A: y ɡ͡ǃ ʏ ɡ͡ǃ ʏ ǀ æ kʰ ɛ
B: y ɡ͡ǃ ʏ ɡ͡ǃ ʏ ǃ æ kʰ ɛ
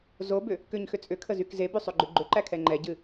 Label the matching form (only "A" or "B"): B